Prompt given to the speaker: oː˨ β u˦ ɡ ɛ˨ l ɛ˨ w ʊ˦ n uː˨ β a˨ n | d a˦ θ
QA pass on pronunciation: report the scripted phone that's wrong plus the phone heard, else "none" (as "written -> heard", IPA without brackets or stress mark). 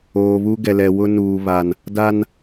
θ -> n